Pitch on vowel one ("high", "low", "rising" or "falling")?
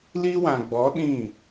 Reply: high